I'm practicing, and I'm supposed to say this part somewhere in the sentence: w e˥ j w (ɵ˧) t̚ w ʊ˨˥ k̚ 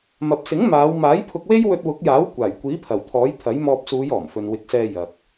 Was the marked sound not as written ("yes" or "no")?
no